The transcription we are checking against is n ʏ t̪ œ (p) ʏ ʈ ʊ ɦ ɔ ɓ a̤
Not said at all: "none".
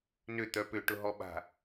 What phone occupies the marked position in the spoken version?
p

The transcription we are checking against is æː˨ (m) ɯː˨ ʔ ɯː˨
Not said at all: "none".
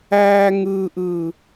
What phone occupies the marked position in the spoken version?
ŋ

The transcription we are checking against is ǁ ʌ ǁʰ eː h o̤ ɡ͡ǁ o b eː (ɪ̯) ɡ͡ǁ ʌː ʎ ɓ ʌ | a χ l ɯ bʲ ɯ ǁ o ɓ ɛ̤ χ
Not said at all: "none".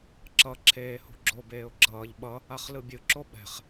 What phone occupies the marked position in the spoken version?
ʊ̯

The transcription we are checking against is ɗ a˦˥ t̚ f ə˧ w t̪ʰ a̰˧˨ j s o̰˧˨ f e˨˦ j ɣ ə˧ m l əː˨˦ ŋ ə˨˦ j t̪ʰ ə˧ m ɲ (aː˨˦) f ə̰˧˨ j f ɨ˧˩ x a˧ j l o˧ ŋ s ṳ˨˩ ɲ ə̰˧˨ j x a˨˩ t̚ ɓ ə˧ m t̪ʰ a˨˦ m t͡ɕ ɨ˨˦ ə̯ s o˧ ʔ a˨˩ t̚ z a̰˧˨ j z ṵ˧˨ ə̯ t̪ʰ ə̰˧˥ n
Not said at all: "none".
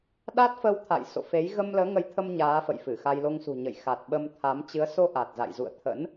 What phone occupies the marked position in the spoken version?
aː˨˦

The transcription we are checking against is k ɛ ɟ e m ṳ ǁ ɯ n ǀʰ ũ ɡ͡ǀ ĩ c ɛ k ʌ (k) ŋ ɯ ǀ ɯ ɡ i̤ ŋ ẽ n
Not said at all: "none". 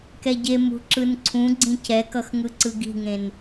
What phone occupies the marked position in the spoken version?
x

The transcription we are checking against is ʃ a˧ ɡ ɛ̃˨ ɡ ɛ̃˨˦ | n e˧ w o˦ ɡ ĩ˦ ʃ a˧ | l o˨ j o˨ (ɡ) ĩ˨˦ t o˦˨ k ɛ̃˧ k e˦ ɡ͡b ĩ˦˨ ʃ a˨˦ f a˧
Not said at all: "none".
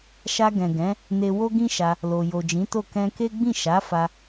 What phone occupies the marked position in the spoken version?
d͡ʒ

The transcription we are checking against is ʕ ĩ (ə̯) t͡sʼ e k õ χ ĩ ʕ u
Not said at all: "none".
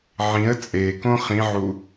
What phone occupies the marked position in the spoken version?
ə̯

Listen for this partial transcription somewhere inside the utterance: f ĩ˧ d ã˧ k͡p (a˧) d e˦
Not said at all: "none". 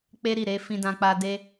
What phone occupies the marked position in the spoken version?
a˧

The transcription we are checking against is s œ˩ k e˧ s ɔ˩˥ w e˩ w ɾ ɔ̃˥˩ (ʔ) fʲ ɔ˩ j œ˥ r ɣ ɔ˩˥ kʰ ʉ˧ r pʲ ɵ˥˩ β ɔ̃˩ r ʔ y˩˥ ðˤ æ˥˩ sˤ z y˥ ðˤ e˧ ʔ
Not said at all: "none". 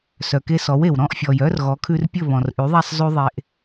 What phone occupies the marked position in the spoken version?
ʔ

